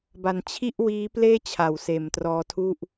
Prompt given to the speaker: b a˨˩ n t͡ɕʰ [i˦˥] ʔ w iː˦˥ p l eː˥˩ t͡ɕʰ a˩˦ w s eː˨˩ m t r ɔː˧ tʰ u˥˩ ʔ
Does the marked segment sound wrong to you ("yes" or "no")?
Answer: yes